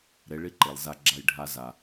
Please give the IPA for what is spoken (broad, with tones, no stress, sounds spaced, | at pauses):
ɾ e˨˦ ɭ i˦ ǃ e˨ lˠ z a˦˨ ɡ͡ǁ a˦˨ j ɖʱ a˧ z a˨